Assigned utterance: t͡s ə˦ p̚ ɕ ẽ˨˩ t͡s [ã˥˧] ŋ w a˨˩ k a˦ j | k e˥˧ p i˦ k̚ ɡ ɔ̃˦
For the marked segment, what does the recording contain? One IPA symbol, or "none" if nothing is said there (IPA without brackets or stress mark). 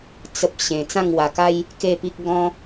ã˥˧